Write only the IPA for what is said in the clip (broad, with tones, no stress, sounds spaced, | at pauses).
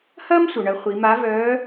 h ɐː˥ m sʷ œ˩ ɳ ɐ˩˧ χʷ i˩˧ m a˧˥ v œː˧˥